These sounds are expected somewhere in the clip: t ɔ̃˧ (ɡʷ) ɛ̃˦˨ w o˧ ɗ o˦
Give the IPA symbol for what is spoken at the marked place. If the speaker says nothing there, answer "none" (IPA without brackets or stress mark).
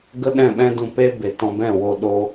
b